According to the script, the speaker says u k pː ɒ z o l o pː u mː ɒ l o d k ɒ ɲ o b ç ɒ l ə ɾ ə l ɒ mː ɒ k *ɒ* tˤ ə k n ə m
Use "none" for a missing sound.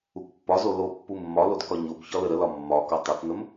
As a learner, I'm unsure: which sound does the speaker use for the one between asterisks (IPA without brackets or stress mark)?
ɒ